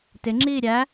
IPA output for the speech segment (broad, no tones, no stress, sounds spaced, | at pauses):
t ɪ ŋ͡ǁ iː ɾʲ æ